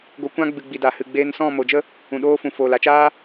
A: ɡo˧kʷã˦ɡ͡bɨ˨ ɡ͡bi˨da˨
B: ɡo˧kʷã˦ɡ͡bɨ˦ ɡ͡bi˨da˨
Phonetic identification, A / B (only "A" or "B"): A